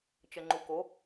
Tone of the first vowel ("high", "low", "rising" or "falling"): low